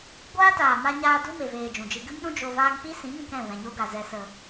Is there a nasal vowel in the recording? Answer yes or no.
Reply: yes